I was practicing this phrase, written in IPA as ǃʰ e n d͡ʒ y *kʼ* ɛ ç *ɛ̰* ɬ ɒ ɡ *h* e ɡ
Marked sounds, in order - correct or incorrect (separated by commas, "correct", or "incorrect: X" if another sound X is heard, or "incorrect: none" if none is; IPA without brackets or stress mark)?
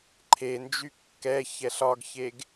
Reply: incorrect: kː, incorrect: ɛ, incorrect: ç